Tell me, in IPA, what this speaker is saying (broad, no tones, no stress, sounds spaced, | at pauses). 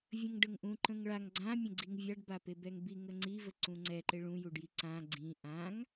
vʲ ə̃ ŋ ɖ ə ŋ ʔ ũ ǃ ə̃ ŋ ɭ a ŋ ɡ͡ǀ ã mʲ ə̃ ɡ͡ǀ i ŋ vʲ a ɖ b a p e b ɛ ŋ b i ŋ ə ŋ͡ǀ i v ə ǀ ũ ŋ͡ǀ ɛ ǃ e ɭ ũ j u ɖ j i ǀ ã ɡ͡ǀ ĩ ʔ ã ŋ